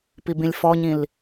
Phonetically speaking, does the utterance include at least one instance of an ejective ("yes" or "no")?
no